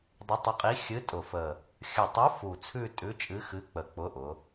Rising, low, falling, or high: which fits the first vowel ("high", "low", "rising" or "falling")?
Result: rising